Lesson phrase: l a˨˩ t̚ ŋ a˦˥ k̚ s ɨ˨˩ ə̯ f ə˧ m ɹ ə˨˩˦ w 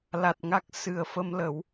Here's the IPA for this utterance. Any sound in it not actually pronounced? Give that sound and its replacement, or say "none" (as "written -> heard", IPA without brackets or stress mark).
ɹ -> l